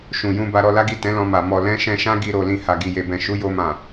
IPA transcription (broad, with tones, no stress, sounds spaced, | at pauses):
ʃ ũ˨ j ũ˧ b a˧ ɾ ɔ˧ l a˦ ɡ i˦˨ t ɛ̃˨˦ l ɔ̃˧ m a˨ m ɔ˨ l ɛ̃˧ ʃ ɛ̃˧ ʃ ã˦ ɡ i˧ ɾ o˨ l ĩ˨ h a˨ ɡ i˨ j e˨ b ɛ̃˨ ʃ u˨˦ j o˧ m ã˨